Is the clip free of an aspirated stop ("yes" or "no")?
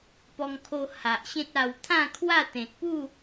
no